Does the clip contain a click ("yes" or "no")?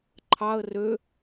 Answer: yes